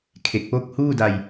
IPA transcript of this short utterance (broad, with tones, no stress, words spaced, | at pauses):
kʰe˨˩k̚po˦˥k̚huː˥˩da˧j